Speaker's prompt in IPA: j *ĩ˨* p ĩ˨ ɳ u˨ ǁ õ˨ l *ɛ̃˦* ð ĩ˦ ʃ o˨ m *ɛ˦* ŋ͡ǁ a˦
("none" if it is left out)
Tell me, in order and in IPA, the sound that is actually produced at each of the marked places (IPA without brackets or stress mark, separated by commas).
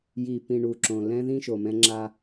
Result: i˨, ɛ̃˦, ɛ̃˦